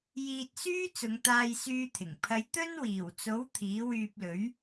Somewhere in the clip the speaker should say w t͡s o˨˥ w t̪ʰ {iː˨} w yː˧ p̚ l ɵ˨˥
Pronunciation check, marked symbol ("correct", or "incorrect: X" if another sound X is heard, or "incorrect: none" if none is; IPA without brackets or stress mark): incorrect: iː˨˥